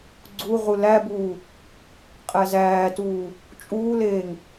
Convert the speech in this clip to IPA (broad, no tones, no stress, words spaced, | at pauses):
ɡ͡ǀuʁu læbuː | qʼæzæːtuː | t͡ʃʼuːleːŋ